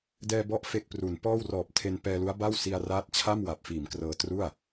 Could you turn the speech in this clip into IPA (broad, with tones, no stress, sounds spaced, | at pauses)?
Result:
d ɛː˧ b ɔ˦˥ ʔ f e˥˩ k̚ p r u˨˩ n p ɔː˥˩ w r ɔː˨˩ p̚ tʰ e˧ n p ɛː˧ l u˦˥ a̯ b a˥˩ w s i˧ a̯ r aː˦˥ t̚ t͡ɕʰ a˥˩ m w a˨˩ p̚ f iː˩˦ m k r ɤː˧ t r u˥˩ a̯